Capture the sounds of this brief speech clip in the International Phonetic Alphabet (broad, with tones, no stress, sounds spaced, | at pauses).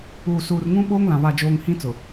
uː˨ s uː˨ r ŋ ũ˦ ɓ oː˦ ŋ l ã˨ β a˨ d͡ʒ oː˨ ŋ h ĩ˦ t͡s ʊ˨